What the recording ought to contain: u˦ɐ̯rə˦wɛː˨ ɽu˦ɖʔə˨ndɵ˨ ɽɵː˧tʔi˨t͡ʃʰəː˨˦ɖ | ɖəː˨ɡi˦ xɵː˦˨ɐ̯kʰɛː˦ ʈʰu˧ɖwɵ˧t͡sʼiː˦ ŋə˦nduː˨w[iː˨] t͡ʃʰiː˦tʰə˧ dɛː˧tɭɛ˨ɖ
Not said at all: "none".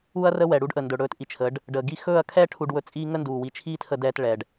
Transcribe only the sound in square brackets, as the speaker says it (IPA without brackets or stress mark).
i˨